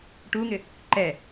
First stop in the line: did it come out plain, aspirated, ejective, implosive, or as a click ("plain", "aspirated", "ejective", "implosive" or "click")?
plain